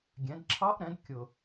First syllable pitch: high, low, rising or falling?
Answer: rising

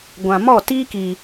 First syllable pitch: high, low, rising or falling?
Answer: low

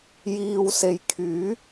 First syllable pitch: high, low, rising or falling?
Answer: low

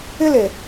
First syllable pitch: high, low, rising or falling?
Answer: high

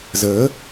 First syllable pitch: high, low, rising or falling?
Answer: rising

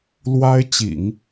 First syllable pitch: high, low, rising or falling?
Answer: high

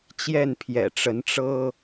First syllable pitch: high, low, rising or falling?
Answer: falling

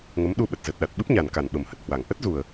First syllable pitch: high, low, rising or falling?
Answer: rising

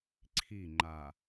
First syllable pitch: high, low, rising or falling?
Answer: falling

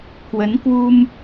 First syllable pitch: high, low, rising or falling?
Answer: rising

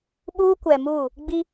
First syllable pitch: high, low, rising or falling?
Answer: high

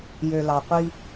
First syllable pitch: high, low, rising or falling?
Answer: low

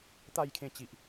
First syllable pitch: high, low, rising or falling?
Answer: falling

